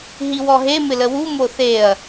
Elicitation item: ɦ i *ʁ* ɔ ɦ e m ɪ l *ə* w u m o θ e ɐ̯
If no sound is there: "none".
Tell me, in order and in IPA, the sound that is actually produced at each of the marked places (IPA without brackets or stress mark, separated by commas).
w, ə